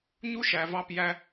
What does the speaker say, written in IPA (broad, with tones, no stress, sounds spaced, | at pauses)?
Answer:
ɲ u˦ ʃ æ˨ v ɑ˧ p j æ˧